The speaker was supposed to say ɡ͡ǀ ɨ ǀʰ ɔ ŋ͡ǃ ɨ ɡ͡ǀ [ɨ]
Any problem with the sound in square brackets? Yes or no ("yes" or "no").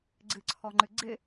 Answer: yes